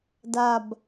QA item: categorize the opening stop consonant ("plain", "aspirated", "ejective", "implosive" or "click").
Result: plain